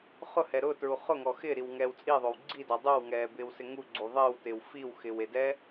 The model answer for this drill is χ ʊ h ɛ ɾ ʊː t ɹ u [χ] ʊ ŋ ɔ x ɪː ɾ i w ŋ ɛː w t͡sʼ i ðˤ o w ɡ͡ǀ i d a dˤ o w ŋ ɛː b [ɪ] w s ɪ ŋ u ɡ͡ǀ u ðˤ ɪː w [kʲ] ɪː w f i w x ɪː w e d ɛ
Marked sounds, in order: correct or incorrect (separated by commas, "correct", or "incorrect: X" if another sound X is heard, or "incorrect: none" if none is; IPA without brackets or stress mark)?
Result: correct, incorrect: ɪː, incorrect: t